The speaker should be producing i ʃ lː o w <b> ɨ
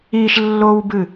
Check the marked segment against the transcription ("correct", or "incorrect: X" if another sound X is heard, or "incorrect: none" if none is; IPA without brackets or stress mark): correct